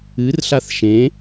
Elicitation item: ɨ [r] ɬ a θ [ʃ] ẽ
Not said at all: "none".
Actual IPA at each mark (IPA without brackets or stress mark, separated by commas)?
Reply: r, ʃ